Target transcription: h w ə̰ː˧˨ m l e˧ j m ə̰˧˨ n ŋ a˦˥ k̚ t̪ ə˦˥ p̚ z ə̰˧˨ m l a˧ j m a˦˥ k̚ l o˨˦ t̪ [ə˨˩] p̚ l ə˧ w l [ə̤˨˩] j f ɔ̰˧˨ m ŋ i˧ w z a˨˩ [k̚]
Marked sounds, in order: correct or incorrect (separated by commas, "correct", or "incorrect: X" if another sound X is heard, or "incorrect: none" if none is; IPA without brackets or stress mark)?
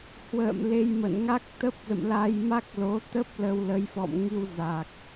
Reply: incorrect: ə˦˥, incorrect: ə˨˦, correct